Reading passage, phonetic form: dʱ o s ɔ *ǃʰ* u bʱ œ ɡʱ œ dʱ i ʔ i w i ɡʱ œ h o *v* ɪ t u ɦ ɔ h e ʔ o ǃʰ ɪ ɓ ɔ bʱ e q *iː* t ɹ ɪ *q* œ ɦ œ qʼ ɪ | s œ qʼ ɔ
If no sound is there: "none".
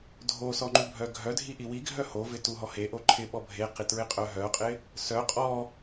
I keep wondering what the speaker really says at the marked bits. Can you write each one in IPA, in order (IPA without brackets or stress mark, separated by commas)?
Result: ŋ͡ǃ, v, i, qʼ